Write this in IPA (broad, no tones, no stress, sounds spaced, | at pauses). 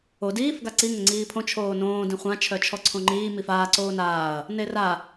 o d iː f ɡ a ǀ i ŋ ɘ ŋ͡ǀ iː pʰ õ t͡ʃʰ oː n õː d ĩ χʷ ã t͡ʃʰ œ t͡ʃʰ ɔ ǀʰ õ ŋ͡ǃ iː m i f aː ǀ oː n aː ɐ̯ | n e r a